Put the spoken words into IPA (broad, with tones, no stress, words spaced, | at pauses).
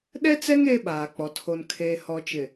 ɗɛ˦t͡sɛ˦ŋ eː˦ɓaː˨k͡pɔ˨ tʰo˨nkʰeː˨hɔ˨ t͡ʃɪ˨